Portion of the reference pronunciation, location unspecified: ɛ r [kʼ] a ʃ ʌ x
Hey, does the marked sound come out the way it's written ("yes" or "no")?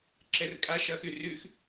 yes